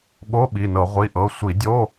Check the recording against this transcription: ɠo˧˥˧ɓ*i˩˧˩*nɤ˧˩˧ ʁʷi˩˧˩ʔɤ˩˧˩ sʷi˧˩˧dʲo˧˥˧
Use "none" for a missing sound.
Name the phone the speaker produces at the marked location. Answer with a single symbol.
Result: i˩˧˩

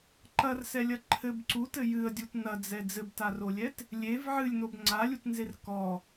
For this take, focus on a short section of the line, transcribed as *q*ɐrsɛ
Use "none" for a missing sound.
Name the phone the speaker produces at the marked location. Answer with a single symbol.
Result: ǃ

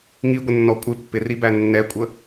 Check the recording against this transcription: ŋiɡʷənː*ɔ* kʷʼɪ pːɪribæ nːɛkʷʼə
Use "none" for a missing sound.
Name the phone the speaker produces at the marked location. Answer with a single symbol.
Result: ɔ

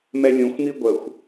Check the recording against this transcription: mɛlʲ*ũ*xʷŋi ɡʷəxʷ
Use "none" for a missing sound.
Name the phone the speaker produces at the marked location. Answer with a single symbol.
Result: ũ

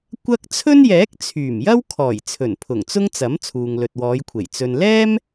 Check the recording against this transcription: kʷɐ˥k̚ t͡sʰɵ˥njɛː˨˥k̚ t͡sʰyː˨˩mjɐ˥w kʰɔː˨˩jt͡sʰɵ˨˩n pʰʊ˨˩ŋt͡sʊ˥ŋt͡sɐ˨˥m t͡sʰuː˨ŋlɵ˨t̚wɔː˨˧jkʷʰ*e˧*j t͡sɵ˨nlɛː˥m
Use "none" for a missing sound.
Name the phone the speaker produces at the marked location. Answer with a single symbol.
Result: e˨˩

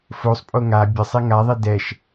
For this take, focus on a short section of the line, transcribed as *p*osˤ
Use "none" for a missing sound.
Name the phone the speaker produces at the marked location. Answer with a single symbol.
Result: f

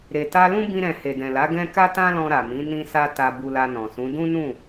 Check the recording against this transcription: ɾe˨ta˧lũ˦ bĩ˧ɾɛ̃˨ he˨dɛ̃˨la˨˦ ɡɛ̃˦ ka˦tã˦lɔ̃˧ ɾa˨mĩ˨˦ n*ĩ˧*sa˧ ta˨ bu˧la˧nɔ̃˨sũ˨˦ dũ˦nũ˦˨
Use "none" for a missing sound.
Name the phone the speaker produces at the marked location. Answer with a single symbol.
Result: ĩ˧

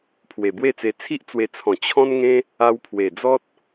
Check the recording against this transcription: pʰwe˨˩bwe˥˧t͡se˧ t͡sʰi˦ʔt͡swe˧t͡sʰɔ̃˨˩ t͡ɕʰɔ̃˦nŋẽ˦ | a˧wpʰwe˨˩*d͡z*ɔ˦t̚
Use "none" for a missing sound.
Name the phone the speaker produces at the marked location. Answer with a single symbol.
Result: d͡z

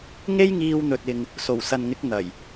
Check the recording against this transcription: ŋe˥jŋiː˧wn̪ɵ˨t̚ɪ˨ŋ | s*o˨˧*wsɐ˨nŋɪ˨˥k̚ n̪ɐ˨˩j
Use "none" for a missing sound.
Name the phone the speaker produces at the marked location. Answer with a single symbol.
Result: o˨˩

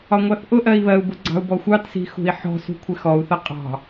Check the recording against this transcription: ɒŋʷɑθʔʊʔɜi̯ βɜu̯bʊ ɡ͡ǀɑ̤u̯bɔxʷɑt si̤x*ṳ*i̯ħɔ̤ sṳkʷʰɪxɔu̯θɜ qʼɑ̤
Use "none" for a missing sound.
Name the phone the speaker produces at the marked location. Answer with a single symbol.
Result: ṳ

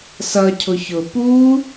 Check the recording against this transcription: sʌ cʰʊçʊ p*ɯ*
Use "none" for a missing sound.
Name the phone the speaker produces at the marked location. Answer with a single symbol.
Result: u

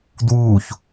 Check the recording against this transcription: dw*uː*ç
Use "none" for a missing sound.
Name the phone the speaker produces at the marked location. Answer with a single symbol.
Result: uː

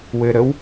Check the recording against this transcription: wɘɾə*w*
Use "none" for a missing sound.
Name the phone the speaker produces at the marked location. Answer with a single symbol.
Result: w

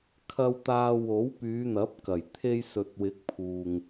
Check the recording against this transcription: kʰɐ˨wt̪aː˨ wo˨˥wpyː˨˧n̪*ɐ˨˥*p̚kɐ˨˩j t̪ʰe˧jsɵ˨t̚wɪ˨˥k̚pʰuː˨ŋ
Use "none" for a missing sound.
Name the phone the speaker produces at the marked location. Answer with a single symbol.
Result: ɐ˨˥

